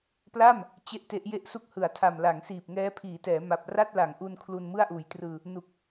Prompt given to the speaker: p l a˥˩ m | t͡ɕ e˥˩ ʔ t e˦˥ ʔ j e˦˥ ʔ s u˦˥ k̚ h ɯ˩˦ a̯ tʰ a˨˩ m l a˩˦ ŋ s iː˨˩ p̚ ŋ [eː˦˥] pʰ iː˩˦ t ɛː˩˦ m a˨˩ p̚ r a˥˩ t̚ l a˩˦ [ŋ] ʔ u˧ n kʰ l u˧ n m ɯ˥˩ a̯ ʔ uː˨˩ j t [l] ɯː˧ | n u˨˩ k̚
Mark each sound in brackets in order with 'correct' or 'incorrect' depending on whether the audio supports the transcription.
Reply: incorrect: ɛː˦˥, correct, incorrect: r

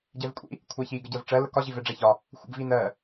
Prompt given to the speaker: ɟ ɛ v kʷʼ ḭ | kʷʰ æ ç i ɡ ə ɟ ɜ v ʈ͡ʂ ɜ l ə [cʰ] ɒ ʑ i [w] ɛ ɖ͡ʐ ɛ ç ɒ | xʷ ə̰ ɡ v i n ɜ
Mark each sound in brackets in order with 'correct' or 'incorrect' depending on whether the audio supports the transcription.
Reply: incorrect: k, incorrect: v

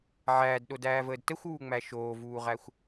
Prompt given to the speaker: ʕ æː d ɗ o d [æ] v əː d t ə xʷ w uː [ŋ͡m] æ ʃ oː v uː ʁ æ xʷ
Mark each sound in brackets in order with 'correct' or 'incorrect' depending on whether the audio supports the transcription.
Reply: incorrect: æː, correct

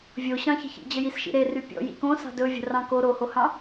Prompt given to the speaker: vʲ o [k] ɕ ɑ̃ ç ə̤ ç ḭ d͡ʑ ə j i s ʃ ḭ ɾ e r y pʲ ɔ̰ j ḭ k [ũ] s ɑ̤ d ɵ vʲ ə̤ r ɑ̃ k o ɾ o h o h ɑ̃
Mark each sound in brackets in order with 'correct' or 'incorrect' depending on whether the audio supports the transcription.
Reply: incorrect: none, incorrect: õ

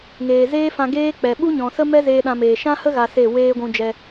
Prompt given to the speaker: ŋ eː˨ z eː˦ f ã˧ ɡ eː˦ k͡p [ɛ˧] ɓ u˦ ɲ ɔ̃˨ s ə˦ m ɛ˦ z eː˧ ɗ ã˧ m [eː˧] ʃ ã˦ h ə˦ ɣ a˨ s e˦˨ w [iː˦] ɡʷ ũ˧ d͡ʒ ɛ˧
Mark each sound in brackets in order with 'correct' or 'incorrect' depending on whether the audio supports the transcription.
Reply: incorrect: ɛ˨, incorrect: eː˨, incorrect: eː˦

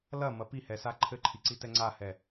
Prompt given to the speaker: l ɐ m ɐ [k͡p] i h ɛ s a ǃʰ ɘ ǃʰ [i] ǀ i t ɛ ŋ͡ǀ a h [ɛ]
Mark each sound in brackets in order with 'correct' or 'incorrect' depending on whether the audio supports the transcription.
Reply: incorrect: p, correct, correct

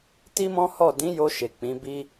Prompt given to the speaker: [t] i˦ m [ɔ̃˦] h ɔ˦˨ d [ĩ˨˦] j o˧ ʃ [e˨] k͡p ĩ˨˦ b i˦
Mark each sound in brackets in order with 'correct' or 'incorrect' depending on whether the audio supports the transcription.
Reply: correct, correct, correct, correct

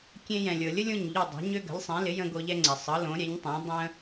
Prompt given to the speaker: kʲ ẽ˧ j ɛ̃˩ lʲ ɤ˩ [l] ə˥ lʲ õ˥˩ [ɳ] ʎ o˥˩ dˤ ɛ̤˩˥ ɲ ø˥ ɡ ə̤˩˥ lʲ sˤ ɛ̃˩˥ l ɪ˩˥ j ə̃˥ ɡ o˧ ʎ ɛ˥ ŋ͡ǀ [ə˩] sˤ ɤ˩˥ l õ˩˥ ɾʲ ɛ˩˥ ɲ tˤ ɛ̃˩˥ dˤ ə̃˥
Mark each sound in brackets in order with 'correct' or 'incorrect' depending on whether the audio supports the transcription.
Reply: incorrect: lʲ, incorrect: ɲ, incorrect: ɛ˩

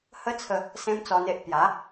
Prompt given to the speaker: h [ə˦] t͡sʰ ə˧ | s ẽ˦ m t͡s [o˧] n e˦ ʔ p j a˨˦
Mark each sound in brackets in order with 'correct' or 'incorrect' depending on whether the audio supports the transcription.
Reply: correct, incorrect: ɔ˧

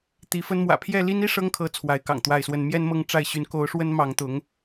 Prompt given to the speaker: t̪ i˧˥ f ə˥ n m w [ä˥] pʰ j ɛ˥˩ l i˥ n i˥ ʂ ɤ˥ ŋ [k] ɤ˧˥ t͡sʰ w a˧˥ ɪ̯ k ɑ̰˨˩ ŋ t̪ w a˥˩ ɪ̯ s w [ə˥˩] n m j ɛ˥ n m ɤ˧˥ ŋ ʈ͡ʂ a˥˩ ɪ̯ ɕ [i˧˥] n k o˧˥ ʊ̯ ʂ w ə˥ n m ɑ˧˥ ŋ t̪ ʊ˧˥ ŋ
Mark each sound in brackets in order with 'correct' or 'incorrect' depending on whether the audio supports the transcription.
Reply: incorrect: ä̰˨˩, incorrect: kʰ, incorrect: ə˥, incorrect: y˧˥

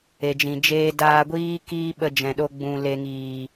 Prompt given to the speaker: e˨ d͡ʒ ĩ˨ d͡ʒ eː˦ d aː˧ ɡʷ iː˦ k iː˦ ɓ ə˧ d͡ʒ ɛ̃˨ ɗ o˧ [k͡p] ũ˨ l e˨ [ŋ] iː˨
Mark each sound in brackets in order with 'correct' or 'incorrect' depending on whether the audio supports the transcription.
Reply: incorrect: ɡ͡b, correct

